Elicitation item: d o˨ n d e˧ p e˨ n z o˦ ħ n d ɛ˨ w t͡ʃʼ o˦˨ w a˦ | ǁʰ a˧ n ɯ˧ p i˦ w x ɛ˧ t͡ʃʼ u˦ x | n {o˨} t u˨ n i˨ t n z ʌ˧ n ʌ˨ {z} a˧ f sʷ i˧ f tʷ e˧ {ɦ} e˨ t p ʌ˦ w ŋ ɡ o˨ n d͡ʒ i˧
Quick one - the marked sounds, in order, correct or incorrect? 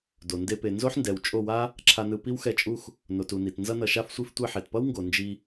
correct, incorrect: ʃ, incorrect: ħ

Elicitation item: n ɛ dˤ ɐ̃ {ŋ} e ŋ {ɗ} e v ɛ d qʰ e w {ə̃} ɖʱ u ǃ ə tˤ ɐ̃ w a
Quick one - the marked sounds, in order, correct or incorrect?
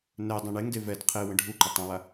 incorrect: ɳ, incorrect: d, correct

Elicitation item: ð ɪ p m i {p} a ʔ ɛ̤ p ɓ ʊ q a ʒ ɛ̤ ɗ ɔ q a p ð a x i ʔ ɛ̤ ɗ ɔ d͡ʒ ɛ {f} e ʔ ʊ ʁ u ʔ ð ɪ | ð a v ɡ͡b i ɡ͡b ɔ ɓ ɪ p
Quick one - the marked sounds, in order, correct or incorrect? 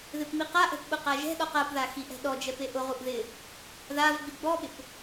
incorrect: q, incorrect: p

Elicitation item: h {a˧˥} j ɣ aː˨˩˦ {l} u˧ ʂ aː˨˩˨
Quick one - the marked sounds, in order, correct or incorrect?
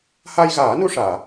incorrect: a˧, incorrect: n

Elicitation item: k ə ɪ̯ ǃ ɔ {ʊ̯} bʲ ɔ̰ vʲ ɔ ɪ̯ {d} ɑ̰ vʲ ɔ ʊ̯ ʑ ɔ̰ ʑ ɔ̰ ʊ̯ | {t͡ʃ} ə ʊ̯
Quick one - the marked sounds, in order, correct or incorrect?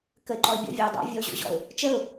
incorrect: ɪ̯, incorrect: dˤ, correct

